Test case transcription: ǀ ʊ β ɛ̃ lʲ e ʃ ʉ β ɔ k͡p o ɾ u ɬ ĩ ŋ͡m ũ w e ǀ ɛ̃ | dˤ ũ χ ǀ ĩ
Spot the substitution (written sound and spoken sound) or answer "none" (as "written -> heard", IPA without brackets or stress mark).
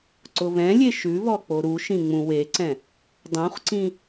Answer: ɬ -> ʃ